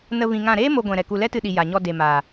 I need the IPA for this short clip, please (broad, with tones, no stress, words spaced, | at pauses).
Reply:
nə˧ vĩ˧ŋã˦˨ ɾeː˦ mo˧ɡʷɛ̃˨ ɾɛ˨ku˨ lɛ˦tɨ˧ɗi˨ ja˨ɲɔ˧ de˨maː˨